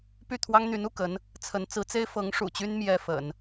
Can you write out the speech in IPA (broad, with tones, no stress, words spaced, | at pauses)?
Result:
py˥˩ t̪ʰwɑ˥ŋn̪y˧˥nu˥˩kə˧˥n | t͡sʰə˧˥n t͡sɹ̩˧˥t͡se˥ɪ̯ fɤ˧˥ŋ ʂṵ˨˩t͡ɕy˥n mjɛ˥fə̰˨˩˦n